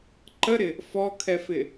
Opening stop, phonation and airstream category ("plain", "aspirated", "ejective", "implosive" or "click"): click